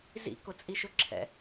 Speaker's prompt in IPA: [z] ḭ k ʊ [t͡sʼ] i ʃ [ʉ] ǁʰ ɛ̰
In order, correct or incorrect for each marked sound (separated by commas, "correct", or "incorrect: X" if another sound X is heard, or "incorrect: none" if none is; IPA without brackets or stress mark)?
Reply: correct, correct, incorrect: ʊ